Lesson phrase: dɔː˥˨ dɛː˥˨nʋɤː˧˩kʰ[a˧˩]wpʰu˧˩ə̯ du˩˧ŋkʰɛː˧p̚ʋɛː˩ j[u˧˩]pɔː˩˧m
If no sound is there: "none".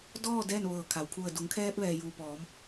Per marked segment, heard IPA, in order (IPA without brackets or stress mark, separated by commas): a˩, u˩